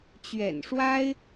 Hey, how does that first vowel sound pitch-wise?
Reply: low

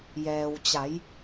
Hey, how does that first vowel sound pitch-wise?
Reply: low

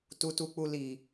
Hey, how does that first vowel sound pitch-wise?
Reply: high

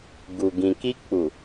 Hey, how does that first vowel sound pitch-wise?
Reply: low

